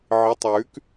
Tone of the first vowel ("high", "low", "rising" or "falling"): rising